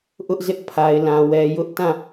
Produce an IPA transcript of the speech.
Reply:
ʔ ʊ˦ ʔ z ɪ˦ ʔ pʰ a˨ ɪ̯ l ã˨ w ɛ˨ j ʊ˦ ʔ t ã˦˨

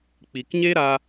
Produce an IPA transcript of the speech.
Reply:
k͡p i˨ k ɲ e˦ ɾ a˧

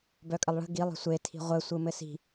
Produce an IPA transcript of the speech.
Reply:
b œ kʼ ə lˠ ɭ ə̤ ɡ i lˠ ə̤ sʷ e tʰ i̤ ʁʷ ɘ sʷ ɯ m ɘ s i̤

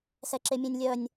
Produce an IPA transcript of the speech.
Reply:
s ɛ ǁ e mʲ ẽ nʲ lʲ œ nʲ

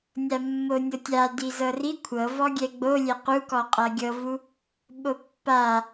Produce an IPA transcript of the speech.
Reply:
nʲ a mː o nʲ ɤ tʲ a d i z ɤ r i kʷʰ ɤ v ɔ ɡʲ ɛ ɡ͡b o lʲ ɛ q u k ɔ qʼ a ɡʲ ɤ v u | ɓ o pː a

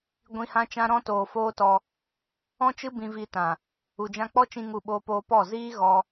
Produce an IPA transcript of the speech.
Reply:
ɡʷ ĩ˧ h ã˦ t͡ʃ ã˧ ɾ ɔ̃˧ t oː˨ f oː˦ t ɔ˧ | ɔ̃˦ t͡ʃ ɨ˦ b ĩ˧ v i˧ t ã˨ | u˨ d͡ʒ ã˧ k͡p ɔ˦ t͡ʃ ĩ˧ ŋ u˦˨ ɓ oː˦ p oː˦ p ɔ˦˨ z iː˦ ɣ ɔ˧

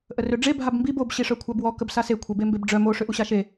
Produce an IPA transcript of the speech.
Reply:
ʔ ə r ø ɖ͡ʐ e bʱ a b m b i b o b ɕ i ʂ œ kʷʰ a b w ɔ k ə b s a s e kʷʰ e b e m b e b ɖ͡ʐ œ m o ʂ ø ʔ u ɕ a ʃ e

